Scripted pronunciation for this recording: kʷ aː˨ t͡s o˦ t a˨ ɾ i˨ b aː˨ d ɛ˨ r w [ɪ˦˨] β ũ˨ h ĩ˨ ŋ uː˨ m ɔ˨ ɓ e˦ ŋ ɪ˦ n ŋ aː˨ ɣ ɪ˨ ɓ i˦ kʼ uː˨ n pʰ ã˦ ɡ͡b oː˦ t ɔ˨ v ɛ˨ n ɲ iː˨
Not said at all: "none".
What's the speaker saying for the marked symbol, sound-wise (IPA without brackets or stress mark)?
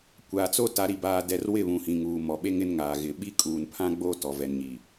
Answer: ɪ˦˨